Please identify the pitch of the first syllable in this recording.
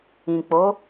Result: low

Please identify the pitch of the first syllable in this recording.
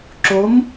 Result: rising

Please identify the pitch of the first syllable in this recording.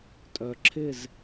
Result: low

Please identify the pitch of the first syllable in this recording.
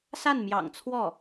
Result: falling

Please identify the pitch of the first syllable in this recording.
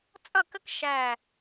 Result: falling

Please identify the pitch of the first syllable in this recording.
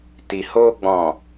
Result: low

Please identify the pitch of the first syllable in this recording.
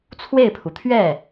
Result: falling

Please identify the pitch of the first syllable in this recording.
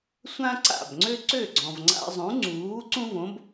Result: high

